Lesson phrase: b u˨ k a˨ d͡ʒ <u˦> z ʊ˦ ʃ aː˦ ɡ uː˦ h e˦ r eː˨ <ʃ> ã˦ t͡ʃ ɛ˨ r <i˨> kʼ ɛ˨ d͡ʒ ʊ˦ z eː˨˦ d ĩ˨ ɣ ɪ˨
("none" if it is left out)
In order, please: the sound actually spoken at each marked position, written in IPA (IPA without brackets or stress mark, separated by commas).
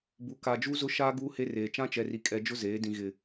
u˦, t͡ʃ, i˨